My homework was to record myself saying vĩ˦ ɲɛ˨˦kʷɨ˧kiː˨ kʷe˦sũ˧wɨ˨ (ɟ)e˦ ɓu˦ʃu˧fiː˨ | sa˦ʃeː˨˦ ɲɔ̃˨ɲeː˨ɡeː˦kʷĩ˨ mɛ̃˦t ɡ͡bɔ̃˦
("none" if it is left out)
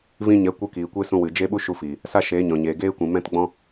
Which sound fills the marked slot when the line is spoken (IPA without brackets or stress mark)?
d͡ʒ